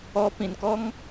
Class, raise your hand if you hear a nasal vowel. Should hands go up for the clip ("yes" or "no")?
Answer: yes